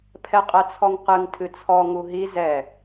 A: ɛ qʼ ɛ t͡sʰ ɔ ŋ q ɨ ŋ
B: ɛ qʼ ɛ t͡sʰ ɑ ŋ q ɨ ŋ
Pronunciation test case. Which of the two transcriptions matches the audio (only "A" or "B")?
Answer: A